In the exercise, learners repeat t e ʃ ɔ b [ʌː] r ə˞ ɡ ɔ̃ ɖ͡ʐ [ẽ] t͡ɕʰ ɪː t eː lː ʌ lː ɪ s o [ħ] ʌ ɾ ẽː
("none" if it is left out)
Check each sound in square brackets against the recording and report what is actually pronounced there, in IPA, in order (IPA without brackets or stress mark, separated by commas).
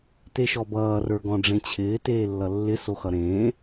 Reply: ʌː, ẽ, x